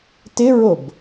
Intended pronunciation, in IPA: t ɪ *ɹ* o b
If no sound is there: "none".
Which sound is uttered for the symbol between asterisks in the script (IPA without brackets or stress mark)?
ɹ